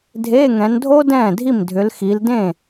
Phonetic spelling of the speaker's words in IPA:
dʱ eː˧˥˧ ŋ ɛ̃˨˦ n dʱ o˦˥ d ɛ̃ː˥˩ dʱ i˥˩ m dʱ ʏ˨˦ l x i˨˦ l d ẽː˥˩

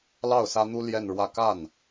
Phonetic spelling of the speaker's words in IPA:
l ɑ˥˩ ʊ̯ s ä˥ n̪ u˥ l j ɛ˥˧ n ɻ w ä˥˧ k a˥˩ n

